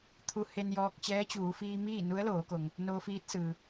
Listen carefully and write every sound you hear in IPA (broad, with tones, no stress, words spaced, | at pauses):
t̪ʰu˧˥ he˧njɔː˧k̚ t͡ɕɛː˧˥t͡ɕuː˩˧fiː˧ miː˥˨nu˧˥ə̯loː˩˧ko˩ŋ | noː˧fiː˧˥t̚sɯː˩